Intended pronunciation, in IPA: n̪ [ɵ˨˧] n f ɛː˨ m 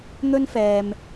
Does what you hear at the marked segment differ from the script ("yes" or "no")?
yes